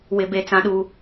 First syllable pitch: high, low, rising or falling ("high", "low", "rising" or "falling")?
high